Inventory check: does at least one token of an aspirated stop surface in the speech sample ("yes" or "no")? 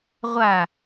no